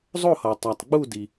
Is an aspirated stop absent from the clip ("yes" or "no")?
yes